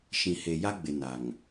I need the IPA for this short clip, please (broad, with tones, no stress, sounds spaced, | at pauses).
ʃ ĩ˨ h e˨ j a˦ ɡ͡b ɪ˨ n a˨ ŋ